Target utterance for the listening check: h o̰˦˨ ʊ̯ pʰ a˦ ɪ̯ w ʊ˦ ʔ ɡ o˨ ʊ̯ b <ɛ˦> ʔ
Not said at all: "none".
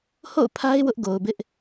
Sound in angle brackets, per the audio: ɪ˦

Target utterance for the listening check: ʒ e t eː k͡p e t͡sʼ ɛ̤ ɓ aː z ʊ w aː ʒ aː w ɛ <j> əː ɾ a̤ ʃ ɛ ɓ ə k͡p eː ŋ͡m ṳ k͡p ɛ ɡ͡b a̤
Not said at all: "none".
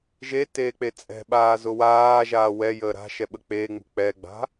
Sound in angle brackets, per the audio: j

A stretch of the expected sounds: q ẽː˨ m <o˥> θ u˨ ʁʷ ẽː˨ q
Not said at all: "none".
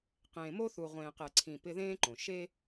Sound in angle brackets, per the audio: o˥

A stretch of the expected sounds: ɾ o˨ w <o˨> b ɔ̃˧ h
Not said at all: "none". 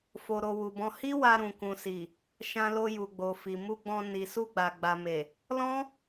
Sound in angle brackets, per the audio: u˨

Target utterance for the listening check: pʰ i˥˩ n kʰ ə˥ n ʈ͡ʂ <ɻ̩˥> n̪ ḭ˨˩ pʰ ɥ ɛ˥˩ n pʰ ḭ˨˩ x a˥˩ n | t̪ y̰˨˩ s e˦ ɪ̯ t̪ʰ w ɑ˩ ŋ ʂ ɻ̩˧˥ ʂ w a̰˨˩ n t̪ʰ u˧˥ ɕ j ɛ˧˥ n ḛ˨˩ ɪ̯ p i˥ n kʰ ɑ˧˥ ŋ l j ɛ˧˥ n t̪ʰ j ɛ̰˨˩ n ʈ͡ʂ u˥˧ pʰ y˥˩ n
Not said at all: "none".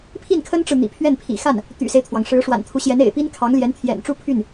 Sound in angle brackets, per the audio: ɻ̩˨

